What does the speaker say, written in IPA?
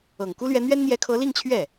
ɤ˨˩ ŋ k u˥ l ɥ ɛ˧˥ n̪ ɥ ɛ˥ n n̪ j ɛ˧˥ kʰ ɤ˧˥ l i˥˧ ŋ t͡ɕʰ ɥ ɛ˥˩

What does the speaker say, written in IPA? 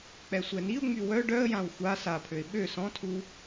k͡p ɛ sʷ ɛ n i ʊ̯ ŋ͡m y w œ ɖ œ ə̯ j ã w xʷ a s a pʰ ø ɪ̯ ɓ ø s ɔ̃ tʰ u

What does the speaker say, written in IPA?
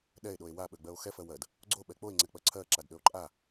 ɗ ɛ e̯ ɗ o e̯ w a ɓ ø ɡ͡b ɜ o̯ x ɛ f ɜ w ɜ d | ɡ͡ǀ o ɓ ɛ k͡p o e̯ ŋ͡ǀ ɛ k͡p ɜ ǀʰ ɜ ǁ a d ɗ ø o̯ ǃʼ a

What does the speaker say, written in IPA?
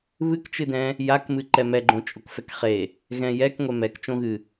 β ɨ k t͡ʃ ɨ d ɛ̃ | j a k m ɨ ǃ ɛ m ɛ ɡ͡ǃ õ t͡ʃʼ o k f ɛ k χ e | ɣ ɛ̃ j ɛ k ŋʷ ɛ m ɛ k t͡ʃ õ ɣ ɨ

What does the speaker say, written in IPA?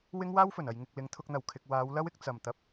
w ɪ˥ ŋ w aː˥ w f ɵ˨˩ n ɐ˨ j ŋ ɪ˨ k̚ l ɪ˨˧ ŋ t̪ʰ ʊ˧ k̚ n̪ ɐ˨˩ w kʰ ɪ˨ k̚ w aː˨˧ w l ɐ˥ w ɪ˧ k̚ t͡s ɐ˨˩ m t̪ ɐ˧ p̚

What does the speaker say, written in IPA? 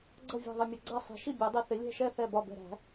ɡ͡ǀ ʌ˥˩ vʲ æ̤˧˩ ðˤ ə˧˩ mʲ ʌ˧˩ ɡ͡ǀ æ˥˩ sˤ ɛ̤˨˩˦ ʃ i˥˩ bʲ æ˨˩˦ dˤ i˧˩ θ ɪ˨˩˦ lʲ ɛ̤˥˩ ʃ ɛ˥˩ θ ɛ˧˩ b ɒ˧˩ b ɛ̤˧˩ ɾ æ̤˨˩˦

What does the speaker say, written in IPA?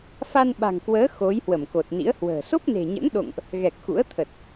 f a˧ n ɓ a̤˨˩ ŋ k w əː˨˦ x o˨˦ j h w ə˧˩ m k o˨˩ t̚ n ḭ˧˥ ə̯ h w ə̤ː˨˩ s o˦˥ p̚ n e̤˨˩ ɲ ə̰˧˥ n ɗ o̰˧˨ ŋ ʔ | ɣ ɛ˨˩ k̚ x ṵ˧˥ ə̯ t̪ʰ ə˨˩ t̚

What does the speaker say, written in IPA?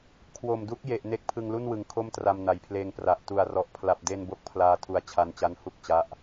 kʰ w o˨˩ m d u˦˥ k̚ j e˨˩ ʔ n e˦˥ k̚ pʰ ɯ˧ ŋ l u˥˩ n w ɯ˨˩ ŋ kʰ o˥˩ m t r a˧ m n a˨˩ j pʰ l eː˧ ŋ p r a˨˩ ʔ t u˨˩ a̯ r ɔ˨˩ ʔ pʰ l a˨˩ p̚ d e˧ n b o˦˥ k̚ pʰ l aː˧ tʰ u˧ a̯ t͡ɕʰ a˧ n t͡ɕ a˦˥ n h u˥˩ k̚ t͡ɕ a˦˥ ʔ

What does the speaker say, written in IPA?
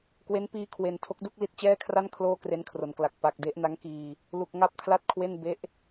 k w e˦˥ n p iː˧ kʰ w e˨˩ n tʰ o˦˥ k̚ d u˥˩ k̚ l i˦˥ t̚ t͡ɕ ɛː˥˩ kʰ r a˥˩ n kʰ l oː˥˩ k r e˦˥ n kʰ r o˩˦ n k l a˨˩ k̚ p a˨˩ k̚ d e˦˥ ʔ n a˦˥ ŋ k iː˧ | l u˨˩ k̚ ŋ a˦˥ p̚ kʰ l a˥˩ t̚ kʰ w e˥˩ n b e˦˥ ʔ

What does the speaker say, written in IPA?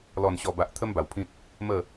l ɔ˨˩ n ɕ ɔ˨˩ b a˨ ʔ t̪ʰ ə˦ m b a˨˩ w pʰ ĩ˦ t̚ | m ə˥˧

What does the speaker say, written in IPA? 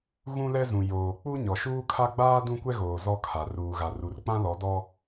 ɣ ũ˦ l ɛ˦ z ũ˨ j oː˨ k͡p u˦ ɲ ɔ˨ ʃ uː˦ kʰ a˦ ɡ͡b aː˦ d ũ˦ kʷ ɛ˦ ɣ oː˨ z ɔ˦ kʰ a˨ r uː˨ ɣ a˨ r u˨ r k͡p ã˦ l ɔ˨˦ d ɔ˦

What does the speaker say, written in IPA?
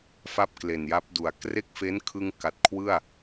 f a˥˩ p̚ k l e˨˩ n j a˦˥ p̚ d u˨˩ a̯ k r e˥˩ k̚ f e˦˥ n kʰ ɯ˧ ŋ k a˨˩ t̚ kʰ w ɯ˥˩ a̯

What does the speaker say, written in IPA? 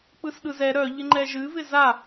k͡p ɯ s ɗ ɯ z ɛ ɾ œ ʎ ɪ ŋ͡ǃ ɛ ʒ ɨ v ɪ z a

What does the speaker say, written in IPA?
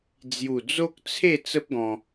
d͡z j u˨˩ d͡z o˦ k̚ t͡sʰ e˥˧ t͡s ə˦ p̚ ɡ ɔ̃˧

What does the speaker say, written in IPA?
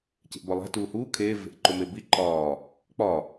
c e̤ ʔ b ɒ lˠ æ̤ t uː h uː kʰ eː v e̤ ʔ ǃ o m e b i ǃ ɒː | k͡p ɒ

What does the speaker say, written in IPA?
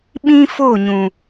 ɓ ĩ˦ f o˦˨ ɲ ũ˨

